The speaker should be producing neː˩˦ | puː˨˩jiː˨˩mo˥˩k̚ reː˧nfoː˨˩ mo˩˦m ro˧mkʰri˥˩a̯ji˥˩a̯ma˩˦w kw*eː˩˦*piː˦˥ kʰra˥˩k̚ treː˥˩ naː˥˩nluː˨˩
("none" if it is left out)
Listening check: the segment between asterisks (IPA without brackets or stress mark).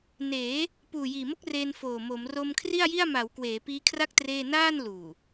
eː˩˦